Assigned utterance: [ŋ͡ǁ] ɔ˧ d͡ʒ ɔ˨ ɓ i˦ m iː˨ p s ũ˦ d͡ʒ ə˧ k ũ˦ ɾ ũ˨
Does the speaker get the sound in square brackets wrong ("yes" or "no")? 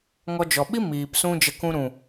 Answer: yes